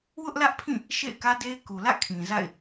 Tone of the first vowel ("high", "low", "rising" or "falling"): high